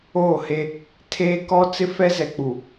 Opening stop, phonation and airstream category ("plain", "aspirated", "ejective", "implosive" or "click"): aspirated